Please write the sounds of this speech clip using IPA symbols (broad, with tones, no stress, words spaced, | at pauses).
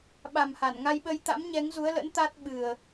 ɓa˨˩mha˧˩nŋa˧jɓə˧j t̪a̰˧˥mɲɛ˨˦ŋzu˨˦ə̯lə̰˧˥n t̪a˦˥t̚ɓɨ˨˩ə̯